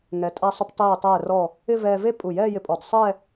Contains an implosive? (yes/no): no